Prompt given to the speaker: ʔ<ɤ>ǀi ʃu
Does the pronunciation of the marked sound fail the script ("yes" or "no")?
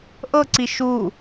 no